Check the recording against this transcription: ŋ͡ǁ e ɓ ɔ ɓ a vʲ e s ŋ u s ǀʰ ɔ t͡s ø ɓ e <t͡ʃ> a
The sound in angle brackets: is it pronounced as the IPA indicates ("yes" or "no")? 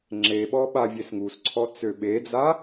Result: no